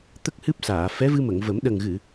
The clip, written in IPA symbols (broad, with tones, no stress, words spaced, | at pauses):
t̪ə˦˥k̚hɨ˦˥p̚saː˨˩˨ fɛ˧˥vɨ˧mə˨˩˨ŋvə˨˩˦m ɗə˨˩ŋɣɨ˨˩˨